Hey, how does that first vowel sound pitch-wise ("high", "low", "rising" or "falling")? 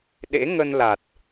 rising